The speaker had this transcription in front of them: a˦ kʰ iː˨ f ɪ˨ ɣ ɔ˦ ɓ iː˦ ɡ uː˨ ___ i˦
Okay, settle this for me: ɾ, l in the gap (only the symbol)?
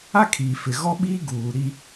ɾ